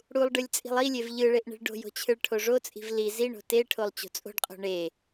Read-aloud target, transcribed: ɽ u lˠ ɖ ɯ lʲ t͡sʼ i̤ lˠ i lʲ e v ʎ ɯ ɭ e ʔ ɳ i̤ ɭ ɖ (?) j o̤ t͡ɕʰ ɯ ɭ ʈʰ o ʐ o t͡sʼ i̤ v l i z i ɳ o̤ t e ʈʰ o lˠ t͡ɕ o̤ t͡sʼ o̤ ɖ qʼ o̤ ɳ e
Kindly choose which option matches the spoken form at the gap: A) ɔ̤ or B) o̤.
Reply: B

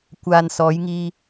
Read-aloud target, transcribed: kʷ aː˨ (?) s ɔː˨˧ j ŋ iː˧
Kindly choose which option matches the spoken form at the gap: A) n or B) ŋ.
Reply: A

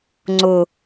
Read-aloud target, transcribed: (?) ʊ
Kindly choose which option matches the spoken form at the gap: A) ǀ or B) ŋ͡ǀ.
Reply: B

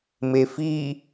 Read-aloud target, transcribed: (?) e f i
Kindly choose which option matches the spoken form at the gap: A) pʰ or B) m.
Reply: B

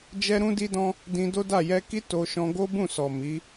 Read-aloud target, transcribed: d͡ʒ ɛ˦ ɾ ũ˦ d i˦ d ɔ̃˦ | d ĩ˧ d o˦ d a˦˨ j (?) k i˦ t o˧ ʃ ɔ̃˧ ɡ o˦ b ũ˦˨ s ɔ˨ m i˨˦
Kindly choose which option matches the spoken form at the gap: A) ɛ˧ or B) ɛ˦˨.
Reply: A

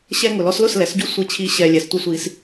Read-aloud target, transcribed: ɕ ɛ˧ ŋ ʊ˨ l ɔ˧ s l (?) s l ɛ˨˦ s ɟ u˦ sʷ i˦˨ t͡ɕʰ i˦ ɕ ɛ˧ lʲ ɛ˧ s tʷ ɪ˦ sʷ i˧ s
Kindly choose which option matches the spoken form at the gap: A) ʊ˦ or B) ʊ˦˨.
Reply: B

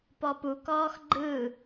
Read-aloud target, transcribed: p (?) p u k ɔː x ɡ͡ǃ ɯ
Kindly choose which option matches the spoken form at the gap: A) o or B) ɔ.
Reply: B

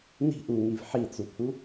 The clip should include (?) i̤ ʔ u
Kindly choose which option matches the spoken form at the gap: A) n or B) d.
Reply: A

